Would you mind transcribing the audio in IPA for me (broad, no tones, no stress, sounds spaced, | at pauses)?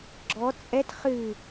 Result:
ɡ͡ǁ ɔ t͡sʼ ɛ t χ ɨ